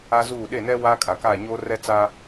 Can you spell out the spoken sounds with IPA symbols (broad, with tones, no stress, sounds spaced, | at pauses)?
a˦ z uː˦˨ ɗ e˦˨ n ɛ˦ w aː˦ kʼ a˨ k aː˦˨ ɲ oː˦ r ɛ˦ t͡s aː˦